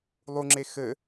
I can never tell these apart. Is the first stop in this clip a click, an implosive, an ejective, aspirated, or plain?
click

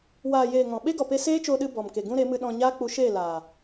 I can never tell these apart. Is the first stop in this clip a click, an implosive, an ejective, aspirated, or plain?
implosive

